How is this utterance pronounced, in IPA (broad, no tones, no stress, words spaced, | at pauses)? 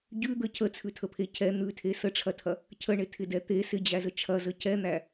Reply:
ɟʉd̪ə cʰət͡sʰʉtʰəpʰe cʰɛ n̪ʉtʰe səʈ͡ʂʰɐtʰɐ | cʰəɳɪtʰɪdɛ t̪e sɪd͡ʑæzə t͡ʃʰɐzə cɛn̪æ